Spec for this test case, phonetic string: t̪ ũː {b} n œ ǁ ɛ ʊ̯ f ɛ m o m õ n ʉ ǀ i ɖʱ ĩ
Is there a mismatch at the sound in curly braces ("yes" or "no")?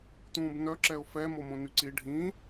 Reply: no